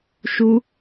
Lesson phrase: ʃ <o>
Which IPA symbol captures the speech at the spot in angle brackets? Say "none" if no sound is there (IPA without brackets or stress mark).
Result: u